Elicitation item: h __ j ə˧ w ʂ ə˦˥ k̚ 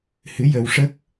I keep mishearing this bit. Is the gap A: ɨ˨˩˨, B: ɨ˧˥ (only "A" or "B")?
B